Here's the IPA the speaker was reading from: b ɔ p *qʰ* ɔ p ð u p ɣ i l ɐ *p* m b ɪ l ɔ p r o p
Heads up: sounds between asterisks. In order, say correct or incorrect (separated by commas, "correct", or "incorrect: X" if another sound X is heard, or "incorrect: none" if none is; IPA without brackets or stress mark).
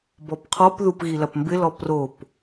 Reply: correct, correct